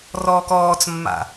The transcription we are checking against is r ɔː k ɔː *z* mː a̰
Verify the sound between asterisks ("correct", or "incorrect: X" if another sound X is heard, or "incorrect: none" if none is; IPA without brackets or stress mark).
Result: incorrect: t͡s